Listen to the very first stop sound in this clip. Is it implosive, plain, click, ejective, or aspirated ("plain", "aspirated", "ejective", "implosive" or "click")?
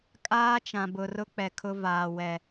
ejective